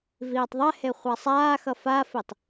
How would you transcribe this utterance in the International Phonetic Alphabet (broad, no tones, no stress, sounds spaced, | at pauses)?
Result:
v iː tˤ ðˤ ɛ h e χʷ a sˤ aː x ʌ f a f i tˤ